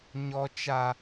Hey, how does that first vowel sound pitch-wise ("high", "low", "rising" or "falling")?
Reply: high